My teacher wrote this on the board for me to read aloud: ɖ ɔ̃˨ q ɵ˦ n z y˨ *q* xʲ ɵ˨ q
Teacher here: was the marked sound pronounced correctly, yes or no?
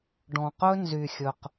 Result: no